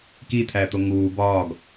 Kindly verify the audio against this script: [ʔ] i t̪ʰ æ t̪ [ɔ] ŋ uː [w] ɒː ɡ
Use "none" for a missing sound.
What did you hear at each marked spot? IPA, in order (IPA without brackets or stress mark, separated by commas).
k, o, b